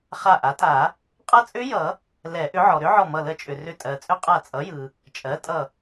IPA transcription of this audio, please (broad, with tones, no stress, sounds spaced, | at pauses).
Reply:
χ a˧˩ ʔ a˩˥ tʼ a˨˩˦ | qʼ ʌ˦˥ t͡sʼ ʏ˦˥ j ʌ˨˩˦ | l ɛ˨˩˦ ʔ ʏ˩˥ ʕ ɔ˩ ɾ ʏ˦˥ ʕ ɔ˧˩ m ʌ˧˩ l ə˧˩ t͡ʃʼ ʏ˩ r ʏ˧˩ tʼ ɜ˩ t͡sʼ ʏ˦˥ qʼ a˧˩ t͡sʼ ʌ˩˥ j ɯ˩ | t͡ʃʼ ɜ˩˥ tʼ ʌ˧˩